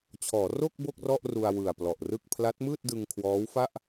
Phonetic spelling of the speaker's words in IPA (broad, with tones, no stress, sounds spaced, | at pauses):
t͡ɕʰ ɔː˩˦ r o˥˩ k̚ b o˥˩ k̚ r ɔ˥˩ ʔ r u˧ a̯ w ɯ˨˩ a̯ p l ɔ˨˩ ʔ r ɯ˥˩ k̚ pʰ l a˦˥ t̚ m ɯː˥˩ t̚ d ɯ˧ ŋ kʰ w ɔː˦˥ w f a˥˩ ʔ